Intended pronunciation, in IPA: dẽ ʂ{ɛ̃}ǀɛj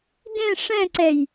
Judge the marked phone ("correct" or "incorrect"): correct